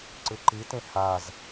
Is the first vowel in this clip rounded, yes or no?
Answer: no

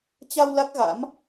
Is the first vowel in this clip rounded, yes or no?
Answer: no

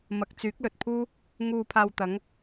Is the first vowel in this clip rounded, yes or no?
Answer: no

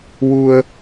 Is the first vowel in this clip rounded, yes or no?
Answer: yes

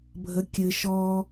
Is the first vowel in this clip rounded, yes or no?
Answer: no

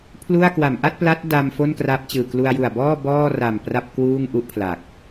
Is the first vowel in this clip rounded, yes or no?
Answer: yes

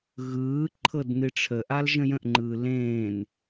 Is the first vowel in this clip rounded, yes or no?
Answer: no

